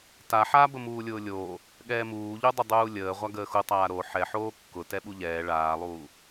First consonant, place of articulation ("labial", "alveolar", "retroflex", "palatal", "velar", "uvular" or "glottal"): alveolar